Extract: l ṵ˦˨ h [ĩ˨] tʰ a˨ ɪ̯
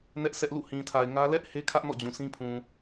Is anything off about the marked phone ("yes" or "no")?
no